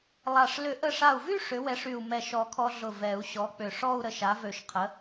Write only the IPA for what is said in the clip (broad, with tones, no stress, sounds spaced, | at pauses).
lˠ a˧˩ ʂ l ʏ˨˩˦ ʔ ə˧˩ ʂ a˧˩ u̯ v y˥˧ ʂ ʏ˨˥ w ɛ˨˥ ʂ y˧˩ u̯ m ɛ˧˩ ʃ ɔ˨˩˦ kʰ ɔ˧ ɮ ʊ˧˩ v ɛ˨˩˦ u̯ ɕ ɔ˨˥ k͡p ʏ˧˩ ʂ ɔ˥˧ u̯ ɾ ə˧˩ ʃ a˨˥ v ø˧˩ ʃ qʰ ə˨˥